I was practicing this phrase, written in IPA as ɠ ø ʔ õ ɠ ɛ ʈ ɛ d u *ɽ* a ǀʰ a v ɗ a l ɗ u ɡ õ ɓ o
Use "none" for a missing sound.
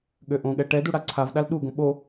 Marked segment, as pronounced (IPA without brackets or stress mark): ɽ